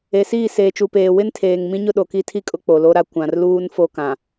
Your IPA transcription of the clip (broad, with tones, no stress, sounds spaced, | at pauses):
e˨ s iː˦˨ s eː˨ t͡ʃ u˨ p eː˨ w ɪ˦ n tʰ eː˨ ŋ m ĩ˦ ɲ ʊ˦ ɗ o˨ k i˦ tʰ i˦ kʼ ʊ˦ k͡p o˨ l o˦ ɾ a˦ kʷ ã˨ r l uː˦ n f o˦ k ã˨